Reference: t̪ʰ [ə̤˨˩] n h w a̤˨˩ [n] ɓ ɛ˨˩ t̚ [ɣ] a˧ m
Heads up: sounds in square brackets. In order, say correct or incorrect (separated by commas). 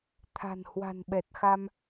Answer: incorrect, correct, incorrect